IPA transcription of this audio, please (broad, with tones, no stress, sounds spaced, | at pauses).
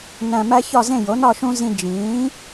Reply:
n æ̃˨˩ m æ˦ ç ɒ˥˨ z ẽ˥˨ j o˩˥ n ɒ˥˨ ʃ ũ˦ z ĩ˦ d͡ʒ ĩː˩˥